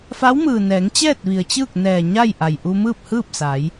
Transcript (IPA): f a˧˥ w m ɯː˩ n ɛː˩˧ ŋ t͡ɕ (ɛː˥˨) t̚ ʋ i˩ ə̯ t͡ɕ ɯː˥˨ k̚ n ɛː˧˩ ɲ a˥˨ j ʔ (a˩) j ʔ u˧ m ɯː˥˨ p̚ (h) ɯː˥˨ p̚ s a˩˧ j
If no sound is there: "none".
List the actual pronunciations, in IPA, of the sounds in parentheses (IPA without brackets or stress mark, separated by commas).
ɛː˥˨, a˩, h